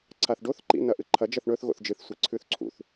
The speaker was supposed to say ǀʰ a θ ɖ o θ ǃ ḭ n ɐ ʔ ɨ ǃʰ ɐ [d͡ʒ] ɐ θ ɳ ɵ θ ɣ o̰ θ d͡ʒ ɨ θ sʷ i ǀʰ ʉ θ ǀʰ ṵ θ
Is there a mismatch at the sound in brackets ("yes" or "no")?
no